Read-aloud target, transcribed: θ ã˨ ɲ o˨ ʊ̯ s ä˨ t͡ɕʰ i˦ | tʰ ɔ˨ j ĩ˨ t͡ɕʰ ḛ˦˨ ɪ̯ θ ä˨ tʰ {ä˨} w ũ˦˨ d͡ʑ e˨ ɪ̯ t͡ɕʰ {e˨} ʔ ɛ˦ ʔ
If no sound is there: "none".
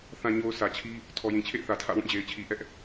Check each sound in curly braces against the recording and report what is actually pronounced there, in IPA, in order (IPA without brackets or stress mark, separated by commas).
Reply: ä̰˦˨, i˨